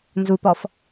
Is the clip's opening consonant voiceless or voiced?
voiced